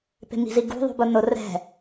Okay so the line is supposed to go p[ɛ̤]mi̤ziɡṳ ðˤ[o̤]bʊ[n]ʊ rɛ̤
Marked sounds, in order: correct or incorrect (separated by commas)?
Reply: incorrect, incorrect, correct